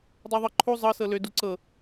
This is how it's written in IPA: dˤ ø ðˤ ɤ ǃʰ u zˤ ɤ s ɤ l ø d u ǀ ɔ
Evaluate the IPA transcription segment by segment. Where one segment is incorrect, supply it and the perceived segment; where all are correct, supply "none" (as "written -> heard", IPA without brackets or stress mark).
ɔ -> ɤ